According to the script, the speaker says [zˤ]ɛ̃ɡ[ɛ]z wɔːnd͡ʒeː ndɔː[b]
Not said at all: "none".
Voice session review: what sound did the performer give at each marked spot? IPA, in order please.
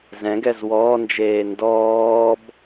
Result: z, ɛ, b

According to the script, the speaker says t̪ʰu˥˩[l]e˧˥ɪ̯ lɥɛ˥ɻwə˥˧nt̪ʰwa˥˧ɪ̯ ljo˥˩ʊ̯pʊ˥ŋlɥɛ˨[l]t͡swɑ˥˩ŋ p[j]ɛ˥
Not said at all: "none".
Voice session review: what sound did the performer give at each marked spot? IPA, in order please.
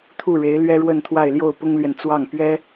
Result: ɻ, n, ɥ

